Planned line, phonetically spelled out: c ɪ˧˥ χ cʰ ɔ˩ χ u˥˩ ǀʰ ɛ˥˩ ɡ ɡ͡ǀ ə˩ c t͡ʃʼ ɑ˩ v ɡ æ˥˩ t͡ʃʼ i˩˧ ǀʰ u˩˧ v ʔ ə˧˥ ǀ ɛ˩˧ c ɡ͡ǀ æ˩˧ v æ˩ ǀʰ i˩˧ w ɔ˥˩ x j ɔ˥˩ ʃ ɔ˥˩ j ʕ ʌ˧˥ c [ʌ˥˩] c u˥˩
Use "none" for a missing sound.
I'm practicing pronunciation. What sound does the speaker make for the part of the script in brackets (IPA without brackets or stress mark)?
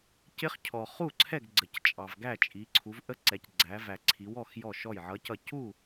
ʌ˥˩